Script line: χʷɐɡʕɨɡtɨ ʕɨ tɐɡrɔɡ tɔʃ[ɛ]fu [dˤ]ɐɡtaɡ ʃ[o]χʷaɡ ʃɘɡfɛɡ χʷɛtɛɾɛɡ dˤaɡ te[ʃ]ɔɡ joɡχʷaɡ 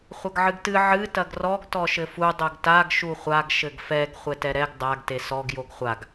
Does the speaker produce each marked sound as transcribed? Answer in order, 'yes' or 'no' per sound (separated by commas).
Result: no, yes, no, no